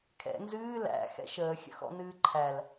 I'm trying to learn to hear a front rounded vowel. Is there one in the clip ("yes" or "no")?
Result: no